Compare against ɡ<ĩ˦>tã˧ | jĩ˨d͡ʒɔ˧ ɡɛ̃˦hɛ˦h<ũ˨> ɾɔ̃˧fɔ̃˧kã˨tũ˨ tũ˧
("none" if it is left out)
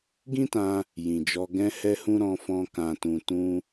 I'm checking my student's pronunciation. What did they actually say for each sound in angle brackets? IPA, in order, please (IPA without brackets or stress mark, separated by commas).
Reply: ĩ˦, ũ˦